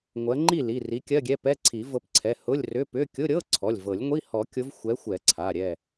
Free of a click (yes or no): no